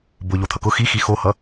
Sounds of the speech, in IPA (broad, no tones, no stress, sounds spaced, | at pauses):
b ʊ ʎ o t̪ʰ ʌ k ʊ x i x i x o h ʌ